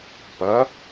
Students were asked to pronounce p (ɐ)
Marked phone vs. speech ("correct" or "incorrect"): correct